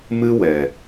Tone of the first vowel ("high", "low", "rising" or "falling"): high